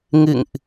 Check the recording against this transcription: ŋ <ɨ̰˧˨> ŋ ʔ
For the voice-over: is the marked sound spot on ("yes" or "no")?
yes